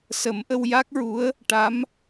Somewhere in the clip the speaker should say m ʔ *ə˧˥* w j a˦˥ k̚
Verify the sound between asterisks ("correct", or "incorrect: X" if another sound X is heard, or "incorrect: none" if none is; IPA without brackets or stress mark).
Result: incorrect: ə˧